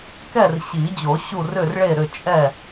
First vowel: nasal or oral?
oral